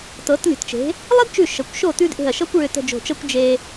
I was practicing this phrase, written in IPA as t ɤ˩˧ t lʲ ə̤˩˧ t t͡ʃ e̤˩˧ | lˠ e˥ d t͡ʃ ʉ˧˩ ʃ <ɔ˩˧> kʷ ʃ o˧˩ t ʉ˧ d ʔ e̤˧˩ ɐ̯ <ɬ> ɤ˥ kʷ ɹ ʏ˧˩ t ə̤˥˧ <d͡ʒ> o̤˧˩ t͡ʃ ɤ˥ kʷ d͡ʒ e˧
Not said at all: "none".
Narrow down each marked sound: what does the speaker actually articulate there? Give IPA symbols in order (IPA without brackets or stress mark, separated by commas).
ə˩˧, ʃ, d͡ʒ